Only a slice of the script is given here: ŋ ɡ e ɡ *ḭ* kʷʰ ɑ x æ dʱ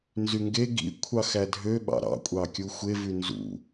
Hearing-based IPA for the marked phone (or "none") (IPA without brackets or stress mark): ḭ